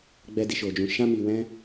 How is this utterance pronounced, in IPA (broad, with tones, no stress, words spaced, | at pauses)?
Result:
ɡ͡bɛ˧di˨ʃo˨d͡ʒũ˨ ʃã˧mi˨wɛ̃˧